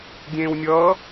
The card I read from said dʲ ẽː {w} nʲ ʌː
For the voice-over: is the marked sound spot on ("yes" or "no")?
yes